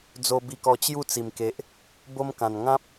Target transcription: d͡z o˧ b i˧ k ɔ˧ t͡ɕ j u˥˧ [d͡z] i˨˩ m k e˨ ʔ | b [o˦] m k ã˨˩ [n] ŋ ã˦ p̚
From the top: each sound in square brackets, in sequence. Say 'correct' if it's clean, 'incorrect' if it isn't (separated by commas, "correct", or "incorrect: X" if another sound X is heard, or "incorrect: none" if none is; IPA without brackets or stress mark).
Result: incorrect: t͡s, correct, correct